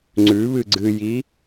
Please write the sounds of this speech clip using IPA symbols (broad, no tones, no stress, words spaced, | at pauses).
ŋ͡ǀʉβɨ ɡ͡ǀɨji